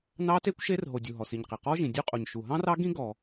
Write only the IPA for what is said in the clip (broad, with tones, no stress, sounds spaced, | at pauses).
n ɑ˦˥ t e˦˥ kʷ ʃ e˦˥ r ɦ o˩ dʲ u˩ ɦ ɔ˩ s i˩ ɲ q e˩ q ɔ˦˥ ʒ ĩ˩ dʲ u˦˥ qʼ o˩ ɲ ʃ u˩ ɦ ɑ̃˦˥ r ɑ˦˥ ɡ ĩ˦˥ ɡ ɔ˩